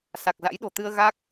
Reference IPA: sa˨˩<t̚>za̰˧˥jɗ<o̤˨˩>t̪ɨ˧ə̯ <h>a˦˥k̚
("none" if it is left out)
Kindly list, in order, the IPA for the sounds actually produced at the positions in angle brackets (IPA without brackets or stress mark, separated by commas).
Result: k̚, o̤˨˩, ɣ